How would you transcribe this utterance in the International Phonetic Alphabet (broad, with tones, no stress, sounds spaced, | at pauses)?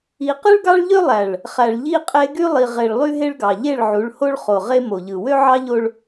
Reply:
i˨˦ q ɯ˦ ɭ ɡ ɑ˦ ɭ ʎ ø˦ lˠ æ˨ ɭ | χ æ˨ ɭ ʎ i˦ qʼ e˦ ɡ y˦ lˠ i˨ ʁ e˨ ɭ lˠ y˦ ɦ e˦ ɭ ɡ ɑ˨ ʎ e˦˨ ɭ ʕ u˨˦ ɭ h o˦ ɭ χ o˨ ʁ e˦ m o˨ ʎ ɯ˨ w ø˦ ʕ ɑ˦ ʎ o˦ ɭ